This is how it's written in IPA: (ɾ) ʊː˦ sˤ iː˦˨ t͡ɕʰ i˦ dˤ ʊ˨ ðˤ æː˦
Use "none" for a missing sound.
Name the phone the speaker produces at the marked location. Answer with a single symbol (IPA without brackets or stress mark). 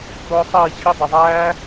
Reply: ɾ